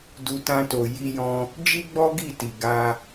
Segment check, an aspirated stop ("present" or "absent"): absent